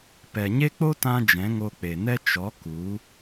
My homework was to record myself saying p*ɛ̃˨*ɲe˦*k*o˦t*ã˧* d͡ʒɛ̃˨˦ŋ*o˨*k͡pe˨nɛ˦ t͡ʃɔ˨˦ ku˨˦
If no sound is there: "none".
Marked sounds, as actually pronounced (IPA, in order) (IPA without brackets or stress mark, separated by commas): ɛ˨, k͡p, ã˧, o˧